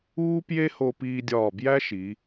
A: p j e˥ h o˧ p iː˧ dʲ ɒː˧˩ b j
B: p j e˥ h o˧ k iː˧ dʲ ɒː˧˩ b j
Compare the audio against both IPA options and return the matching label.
A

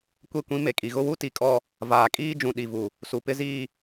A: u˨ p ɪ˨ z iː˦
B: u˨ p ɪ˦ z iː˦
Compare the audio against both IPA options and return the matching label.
B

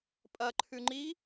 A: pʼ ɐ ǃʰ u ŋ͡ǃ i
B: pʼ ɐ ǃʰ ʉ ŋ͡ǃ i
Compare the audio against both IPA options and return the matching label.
B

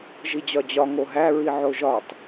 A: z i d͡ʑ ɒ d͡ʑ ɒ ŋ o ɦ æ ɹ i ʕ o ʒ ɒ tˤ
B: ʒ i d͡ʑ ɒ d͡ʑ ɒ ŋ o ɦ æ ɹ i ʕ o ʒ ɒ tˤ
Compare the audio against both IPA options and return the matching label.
B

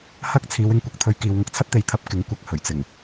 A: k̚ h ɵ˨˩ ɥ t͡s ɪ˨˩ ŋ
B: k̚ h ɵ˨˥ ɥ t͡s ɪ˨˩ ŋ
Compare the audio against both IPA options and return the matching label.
A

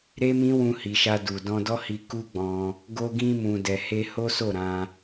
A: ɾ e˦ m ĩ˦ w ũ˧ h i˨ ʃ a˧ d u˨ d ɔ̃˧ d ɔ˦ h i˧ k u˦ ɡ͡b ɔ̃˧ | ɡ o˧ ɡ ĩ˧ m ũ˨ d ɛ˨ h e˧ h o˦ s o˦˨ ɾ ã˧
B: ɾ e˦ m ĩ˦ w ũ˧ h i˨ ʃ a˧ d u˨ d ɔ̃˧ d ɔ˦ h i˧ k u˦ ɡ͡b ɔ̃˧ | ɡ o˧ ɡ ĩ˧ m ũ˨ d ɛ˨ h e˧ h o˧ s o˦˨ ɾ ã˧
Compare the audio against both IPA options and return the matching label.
A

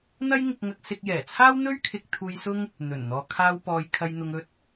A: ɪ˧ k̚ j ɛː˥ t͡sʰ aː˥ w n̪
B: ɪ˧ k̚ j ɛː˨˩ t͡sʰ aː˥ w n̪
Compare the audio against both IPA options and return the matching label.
B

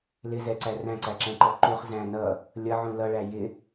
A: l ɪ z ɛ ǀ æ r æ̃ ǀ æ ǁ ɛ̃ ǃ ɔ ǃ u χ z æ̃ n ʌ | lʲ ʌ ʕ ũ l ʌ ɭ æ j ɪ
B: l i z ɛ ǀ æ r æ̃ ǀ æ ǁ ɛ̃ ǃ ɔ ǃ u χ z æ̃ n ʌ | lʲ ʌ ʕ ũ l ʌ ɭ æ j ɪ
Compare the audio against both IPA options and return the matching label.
A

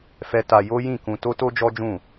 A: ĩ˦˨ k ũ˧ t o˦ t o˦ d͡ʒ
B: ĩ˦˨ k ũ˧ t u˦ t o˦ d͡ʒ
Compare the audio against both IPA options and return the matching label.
A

